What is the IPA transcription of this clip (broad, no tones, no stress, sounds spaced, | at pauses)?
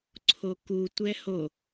ǀʰ o k u tʷ ɛ h o